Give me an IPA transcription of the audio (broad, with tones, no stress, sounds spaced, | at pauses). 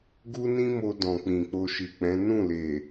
ɡ u˦ n ĩ˦ m o˧ d ɔ̃˨ k͡p ĩ˨ k͡p o˧ ʃ i˨ k͡p ɛ̃˨˦ n ũ˦˨ l e˨